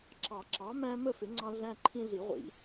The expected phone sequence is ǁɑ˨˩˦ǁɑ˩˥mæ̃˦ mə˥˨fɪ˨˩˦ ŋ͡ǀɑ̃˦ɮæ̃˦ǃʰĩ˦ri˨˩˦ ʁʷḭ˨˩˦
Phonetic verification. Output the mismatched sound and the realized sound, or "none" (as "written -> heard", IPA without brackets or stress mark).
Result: r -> ɮ